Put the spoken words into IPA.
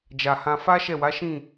d͡ʒ a˨ h ã˧ f a˦ ʃ ɛ˦˨ w a˨˦ ʃ ĩ˦˨

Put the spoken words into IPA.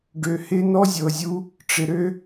ɖ ø˨ h ɪ˦ n ɔ˦ zʲ ɤ˨ zʲ u˦ | ʈ͡ʂ ɪ˨ ɾ ø˦

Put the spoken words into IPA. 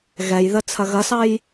ɣ ɛ j ð ə t͡sʰ ɐ ɣ ɐ s ɑ j

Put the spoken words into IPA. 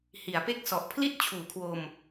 h i˩˦ a̯ p e˥˩ k̚ s ɔ˨˩ ʔ pʰ l i˥˩ t̚ t͡ɕʰ uː˩˦ kʰ w o˧ m

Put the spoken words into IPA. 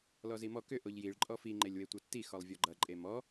l ɔ z i m ɔ k ʏ ʔ o ʎ j i ɭ ǃʼ ɔ f i ŋ͡ǃ e lʲ w e tʷ ʌ tː i x ɔ lˠ vʲ ɔ ɡ͡ǃ ʌ ǃʼ e m ɔ

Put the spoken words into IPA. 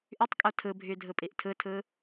ʔ y tˤ kʼ o tʰ ɯ bʱ y dʱ ɯ pʼ i ʔ tʰ ɯ tʰ ɯ

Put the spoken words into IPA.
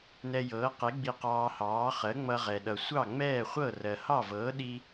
n ɛ˧ j ɤː˩˥ q e˩˥ ɡ͡b i˧ q ɑː˧ h ɑː˩˥ χ ɜ˩˥ ŋ͡m ʌ˧ ʁ ɛ˩ ɗ ʌ˩ sʷ ɑ˥˩ ŋ͡m ɛː˥˩ χʷ ɤ˥˩ r ɜ˩ h ɑ˥˩ v ɤː˩˥ ɗ i˧

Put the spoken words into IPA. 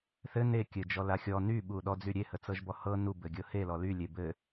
θ ɘ n e kʲ ɘ d͡ʒ ɔ l a xʲ ɔ n y ɓ u ɗ ɔ d͡z y ɾʲ e h ə t͡s ɤ ʒ b ɔ h ɤ n u b ɘ ɡʲ ɤ h e l ɔ l y lʲ e b ɘ

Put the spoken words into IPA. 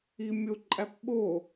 i mʲ o ǃʼ æ p ɓ o

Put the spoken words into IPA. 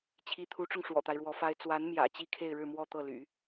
t͡ɕʰ i˧˥ t̪ʰ u˧˥ ʈ͡ʂ ʊ˧ ŋ ʂ w ɔ̰˨˩ t̪ a˦ ɪ̯ ɻ w ɔ˧˥ f a˥ ɪ̯ t͡s w a˧˥ n m j ä̰˨˩ t͡ɕ i˥ kʰ e˥˧ ɪ̯ ɻ ɻ̩˥˧ m w ɔ˥˧ t̪ ɤ˥˩ l y̰˨˩˦

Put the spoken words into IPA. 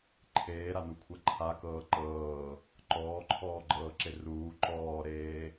ǃʰ eː ɾ a n u kʷʰ a ǃʰ a k ɤː ǃ ɤː | ǃ ɔː ǃʰ ɔː ɡ͡ǃ ɤː ǁ e r uː ǃ ɔː ɾ eː

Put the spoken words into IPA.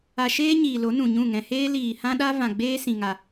a˧ ʃ eː˦ ɲ iː˨ l o˨˦ n ũ˨ ɲ ũ˦˨ ŋ ɛ̃˧ h eː˦ l iː˨ h ã˦ ɗ a˦ v ã˨ ɡ͡b eː˦ s ĩ˨ ŋ a˨

